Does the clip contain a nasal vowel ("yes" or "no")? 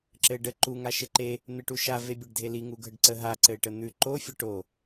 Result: no